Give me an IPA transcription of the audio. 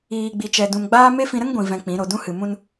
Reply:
iː˧ ɡ͡b i˧ t͡ʃ ɛ˧ d ũ˨ m ɡ͡b aː˦ m e˦ f ĩ˧ ɾ ə˦ ŋ ɡʷ ĩ˨ v ɛ̃˧ k͡p ĩ˨˦ ɾ o˨ d ũ˧ h ɨ˨ m ũ˧ n

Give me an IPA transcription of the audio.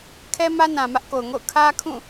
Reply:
kʰ ɛ˦ m ä˦ n ã˨ m ä˦ ʔ k o˨ ʊ̯ ŋ o̰˦˨ ʊ̯ kʰ ä˦ kʰ ũ˦˨

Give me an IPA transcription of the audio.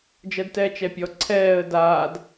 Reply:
d͡ʒ ɜ d t ɛː t͡ʃ ɛ pʲ ɔ ǀʰ ɛː ə̯ d aː d

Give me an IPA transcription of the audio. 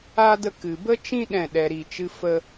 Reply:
a˦ d ə˧ k ɨ˨ b ə˦ t͡ʃ ĩ˦ ɗ ɛ̃˦˨ ɗ ɛ˧ ɾ i˧ t͡ʃ ɨ˦ f ə˦

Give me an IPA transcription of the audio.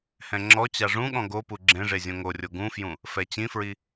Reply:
h ɛ̃ ŋ͡ǁ ɔ t͡ɕ a ʐ ũ ɠ ɔ̃ ɡ o p u ɡ͡ǁ ẽ ʐ e zʲ õ ŋ o rʲ o ɡ ũ f j ũ | f ɛ t͡ɕ ĩ f ɹ i

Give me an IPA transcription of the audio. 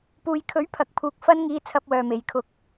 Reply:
p uː˨ j kʰ ɵ˨˥ ɥ pʰ ɐ˨ k̚ pʰ uː˧ k̚ f ɐ˥ n ŋ iː˨˧ t͡sʰ ɐ˧ p̚ w œː˨ m e˨˧ j kʰ ʊ˧ k̚

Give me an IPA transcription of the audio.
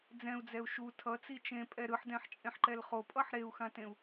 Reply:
d͡z ɛ̃ u̯ d͡z ɛ u̯ ʃ u tʰ ʌ t͡s i t͡ʃ ẽ pʼ ɛ ɾ ɯ ħ d ɛ̃ ħ t͡ʃʼ ẽ ħ ǃ ɛ l χ o pʼ ʌ ħ ɾ e u̯ x ã t ẽ u̯

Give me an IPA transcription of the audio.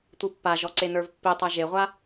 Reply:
tʷ i pː a ʒ ɔ ǀ e n ə˞ v pː i tˤ a ʒ e ʁʷ a

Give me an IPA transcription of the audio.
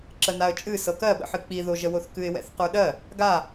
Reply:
ǁ ə n a ə̯ t͡ʃʼ ɨ s ɤ k ɜ ɓ ə̰ ħ ɨ k͡p i ð o ʒ ə w o θ k ɨ ɪ̯ w ɛ̰ θ q ə˞ ɗ ɜ | ɡ a

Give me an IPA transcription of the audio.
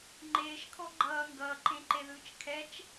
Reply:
ŋ͡ǃ eː ʃ kʰ ɔ ɡ͡ǃ ʌː ŋ ɡ ʌː ǃ ẽ ǃ e ð ɯː t͡ʃ kʰ ɛ t͡ʃ

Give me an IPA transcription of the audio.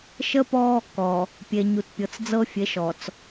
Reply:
ʃ ə˦ p ɔ˦ | k ɔ˨ | pʲ e˨ ɲ u˨ t pʲ ɤ˨ t͡s d͡z ɤ˦ fʲ e˨˦ ʃ ɔ˨ t͡s

